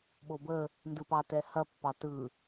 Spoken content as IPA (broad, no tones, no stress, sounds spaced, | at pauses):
ɓ o b ə | n d ɯ p ɑ t ɛ h ɐ pː ɑ t ɯ